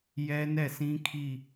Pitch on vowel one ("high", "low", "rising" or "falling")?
high